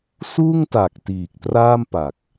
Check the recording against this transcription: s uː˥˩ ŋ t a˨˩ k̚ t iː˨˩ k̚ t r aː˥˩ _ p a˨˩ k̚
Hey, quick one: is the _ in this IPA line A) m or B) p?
A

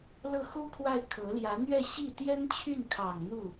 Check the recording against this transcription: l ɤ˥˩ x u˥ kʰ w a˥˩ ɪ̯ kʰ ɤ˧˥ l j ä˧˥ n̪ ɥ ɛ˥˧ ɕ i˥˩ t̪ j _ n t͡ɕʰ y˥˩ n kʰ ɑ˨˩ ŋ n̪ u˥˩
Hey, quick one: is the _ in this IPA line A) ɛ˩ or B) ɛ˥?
B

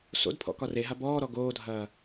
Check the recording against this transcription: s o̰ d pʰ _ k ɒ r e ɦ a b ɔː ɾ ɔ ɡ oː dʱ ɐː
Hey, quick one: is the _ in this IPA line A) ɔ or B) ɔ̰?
B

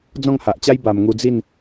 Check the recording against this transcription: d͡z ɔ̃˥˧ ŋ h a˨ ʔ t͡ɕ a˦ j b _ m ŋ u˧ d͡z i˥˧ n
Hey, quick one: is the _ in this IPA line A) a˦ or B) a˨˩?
B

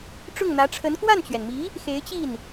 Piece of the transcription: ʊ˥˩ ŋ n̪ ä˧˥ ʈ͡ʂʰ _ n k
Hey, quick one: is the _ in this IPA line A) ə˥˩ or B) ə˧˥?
B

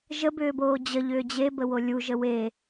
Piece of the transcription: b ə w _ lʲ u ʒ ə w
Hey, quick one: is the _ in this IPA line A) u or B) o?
B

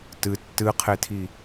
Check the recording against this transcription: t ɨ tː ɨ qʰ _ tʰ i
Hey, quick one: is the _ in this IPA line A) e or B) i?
A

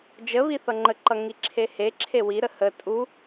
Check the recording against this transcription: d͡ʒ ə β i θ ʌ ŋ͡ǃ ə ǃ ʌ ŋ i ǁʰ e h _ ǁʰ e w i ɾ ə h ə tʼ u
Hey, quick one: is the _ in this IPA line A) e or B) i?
A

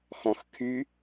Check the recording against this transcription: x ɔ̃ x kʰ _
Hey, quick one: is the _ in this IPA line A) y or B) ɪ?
A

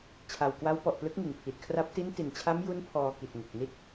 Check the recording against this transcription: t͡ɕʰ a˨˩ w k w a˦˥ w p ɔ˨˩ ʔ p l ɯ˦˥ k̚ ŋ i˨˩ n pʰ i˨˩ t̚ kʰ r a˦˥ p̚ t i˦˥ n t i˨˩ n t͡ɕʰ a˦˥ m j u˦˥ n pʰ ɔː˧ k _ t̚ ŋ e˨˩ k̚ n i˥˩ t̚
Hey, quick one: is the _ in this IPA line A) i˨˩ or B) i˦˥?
A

